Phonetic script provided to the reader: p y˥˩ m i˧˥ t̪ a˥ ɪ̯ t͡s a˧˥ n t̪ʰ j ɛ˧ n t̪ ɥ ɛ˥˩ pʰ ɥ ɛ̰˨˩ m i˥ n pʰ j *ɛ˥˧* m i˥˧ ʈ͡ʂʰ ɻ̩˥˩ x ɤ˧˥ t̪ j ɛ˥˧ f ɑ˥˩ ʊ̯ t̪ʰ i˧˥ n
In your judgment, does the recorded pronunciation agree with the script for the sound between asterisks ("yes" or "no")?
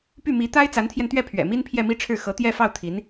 yes